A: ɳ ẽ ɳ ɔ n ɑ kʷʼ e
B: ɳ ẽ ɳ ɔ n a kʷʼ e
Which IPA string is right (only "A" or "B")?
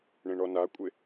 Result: B